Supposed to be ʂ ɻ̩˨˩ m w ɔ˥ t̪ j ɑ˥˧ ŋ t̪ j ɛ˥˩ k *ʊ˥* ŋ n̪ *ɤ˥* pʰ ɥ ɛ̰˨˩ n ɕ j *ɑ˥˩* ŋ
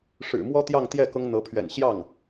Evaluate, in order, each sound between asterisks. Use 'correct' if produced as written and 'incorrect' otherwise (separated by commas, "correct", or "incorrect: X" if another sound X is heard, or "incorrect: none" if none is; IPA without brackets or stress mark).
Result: correct, incorrect: ɤ˧˥, correct